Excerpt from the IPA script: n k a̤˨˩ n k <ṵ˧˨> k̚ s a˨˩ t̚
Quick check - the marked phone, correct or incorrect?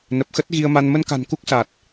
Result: incorrect